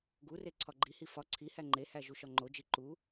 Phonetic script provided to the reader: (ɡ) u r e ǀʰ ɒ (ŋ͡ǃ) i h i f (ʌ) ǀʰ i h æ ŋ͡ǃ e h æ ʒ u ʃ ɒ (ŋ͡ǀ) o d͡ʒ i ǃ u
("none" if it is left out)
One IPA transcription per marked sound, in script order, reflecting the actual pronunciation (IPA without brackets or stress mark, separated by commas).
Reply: ɡ, ɡ͡ǃ, ɒ, ŋ͡ǃ